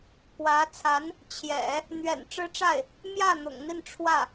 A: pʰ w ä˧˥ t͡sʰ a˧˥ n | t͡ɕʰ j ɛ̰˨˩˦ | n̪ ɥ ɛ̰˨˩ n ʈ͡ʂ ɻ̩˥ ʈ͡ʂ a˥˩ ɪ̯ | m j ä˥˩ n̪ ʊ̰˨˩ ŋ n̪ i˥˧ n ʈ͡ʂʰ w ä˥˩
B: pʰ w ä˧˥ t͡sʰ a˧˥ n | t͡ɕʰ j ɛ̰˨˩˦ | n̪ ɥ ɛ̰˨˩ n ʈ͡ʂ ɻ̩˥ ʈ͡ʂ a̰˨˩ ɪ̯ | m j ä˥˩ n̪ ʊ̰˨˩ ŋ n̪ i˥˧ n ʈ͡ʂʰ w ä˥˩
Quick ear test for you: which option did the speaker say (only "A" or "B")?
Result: A